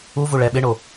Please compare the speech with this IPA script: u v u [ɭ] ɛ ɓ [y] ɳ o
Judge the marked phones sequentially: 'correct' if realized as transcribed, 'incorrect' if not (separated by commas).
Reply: correct, incorrect